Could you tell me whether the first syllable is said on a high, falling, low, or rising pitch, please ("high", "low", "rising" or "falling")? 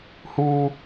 high